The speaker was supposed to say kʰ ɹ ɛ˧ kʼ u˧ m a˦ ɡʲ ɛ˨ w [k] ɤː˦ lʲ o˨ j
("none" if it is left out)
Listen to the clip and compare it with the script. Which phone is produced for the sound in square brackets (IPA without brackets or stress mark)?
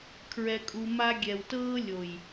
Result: t